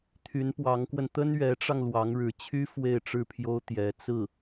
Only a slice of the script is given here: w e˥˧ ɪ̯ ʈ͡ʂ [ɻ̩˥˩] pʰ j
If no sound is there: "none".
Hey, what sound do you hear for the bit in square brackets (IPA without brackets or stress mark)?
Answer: ɻ̩˥˩